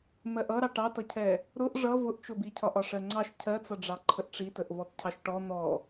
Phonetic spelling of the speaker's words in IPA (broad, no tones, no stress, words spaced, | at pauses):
mɜʔʌɾɑ ʈɑtʌcʰɛ | ɾʊʔ ʐʌ vʊʔt͡ʃʊbi cʰɒʔɒʂɜŋ͡ǀɑʃ cʰɜt͡sʌɖ͡ʐɑ ǃʰəʔʈ͡ʂitəʔ vɔtcʰɑʃʈɔ n̪ɔ